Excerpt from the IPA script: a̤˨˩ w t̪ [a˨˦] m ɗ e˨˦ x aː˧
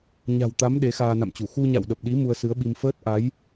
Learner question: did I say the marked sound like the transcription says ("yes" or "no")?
yes